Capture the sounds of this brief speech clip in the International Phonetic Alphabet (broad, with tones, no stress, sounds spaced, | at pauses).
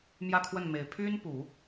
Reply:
m j ä˥˧ kʰ w ə˥˩ n m e˨˩ ɪ̯ pʰ y˥ n p u˨˩˦